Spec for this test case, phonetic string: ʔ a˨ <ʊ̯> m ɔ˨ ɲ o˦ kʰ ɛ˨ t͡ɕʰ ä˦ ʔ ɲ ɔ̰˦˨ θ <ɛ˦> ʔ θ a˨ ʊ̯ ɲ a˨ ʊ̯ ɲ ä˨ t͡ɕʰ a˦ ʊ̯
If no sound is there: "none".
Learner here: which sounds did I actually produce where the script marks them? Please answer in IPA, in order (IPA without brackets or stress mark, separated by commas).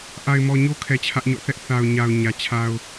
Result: ɪ̯, ɛ˦